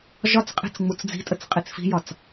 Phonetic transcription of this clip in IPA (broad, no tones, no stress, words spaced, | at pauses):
ʒɒt͡sqʼi̤t͡s ŋ͡mut͡sd͡zi̤tʼət͡s qʼit͡sfi̤jɒt͡s